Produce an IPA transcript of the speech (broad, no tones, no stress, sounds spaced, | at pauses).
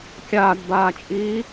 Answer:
kʲ aː d b aː t͡ʃʼ iː